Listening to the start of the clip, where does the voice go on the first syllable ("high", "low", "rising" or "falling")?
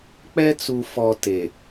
high